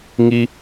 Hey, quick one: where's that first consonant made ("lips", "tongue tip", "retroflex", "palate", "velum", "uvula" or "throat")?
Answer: velum